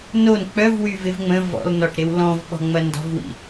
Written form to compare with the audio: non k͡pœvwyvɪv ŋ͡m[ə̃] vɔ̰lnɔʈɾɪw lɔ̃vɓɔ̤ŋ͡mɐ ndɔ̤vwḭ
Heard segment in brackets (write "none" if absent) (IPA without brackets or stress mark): ə̃